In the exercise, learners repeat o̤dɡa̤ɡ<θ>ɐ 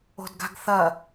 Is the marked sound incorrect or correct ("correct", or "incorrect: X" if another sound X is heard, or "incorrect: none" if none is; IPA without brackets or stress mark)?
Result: correct